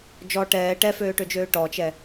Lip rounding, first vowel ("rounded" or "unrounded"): rounded